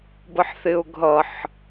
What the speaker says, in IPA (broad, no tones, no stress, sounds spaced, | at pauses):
b ə ħ θ ɪ ʊ̯ ɡʱ ʌ ħ